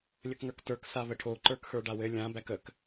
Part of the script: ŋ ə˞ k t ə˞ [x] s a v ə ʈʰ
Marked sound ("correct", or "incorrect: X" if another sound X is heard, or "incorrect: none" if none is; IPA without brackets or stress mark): incorrect: k